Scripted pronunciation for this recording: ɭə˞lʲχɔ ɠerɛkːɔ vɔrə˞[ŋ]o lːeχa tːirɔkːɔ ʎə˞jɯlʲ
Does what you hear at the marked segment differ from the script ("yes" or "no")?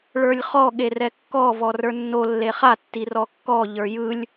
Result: yes